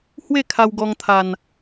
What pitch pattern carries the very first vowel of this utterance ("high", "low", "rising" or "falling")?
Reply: falling